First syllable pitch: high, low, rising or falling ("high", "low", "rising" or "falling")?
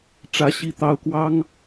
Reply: rising